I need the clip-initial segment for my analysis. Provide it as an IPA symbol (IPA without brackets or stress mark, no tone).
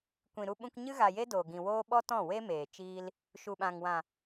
kʷ